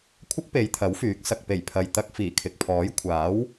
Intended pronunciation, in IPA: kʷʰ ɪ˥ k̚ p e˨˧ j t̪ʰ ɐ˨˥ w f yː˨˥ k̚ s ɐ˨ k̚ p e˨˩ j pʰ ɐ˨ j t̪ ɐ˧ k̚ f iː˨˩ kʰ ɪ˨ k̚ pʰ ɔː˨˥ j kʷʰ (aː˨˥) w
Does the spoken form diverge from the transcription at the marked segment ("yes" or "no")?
no